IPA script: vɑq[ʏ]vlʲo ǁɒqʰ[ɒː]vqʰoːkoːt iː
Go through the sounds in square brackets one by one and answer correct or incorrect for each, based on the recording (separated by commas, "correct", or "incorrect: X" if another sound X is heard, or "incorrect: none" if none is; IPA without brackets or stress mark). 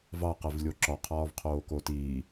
incorrect: ɛ, correct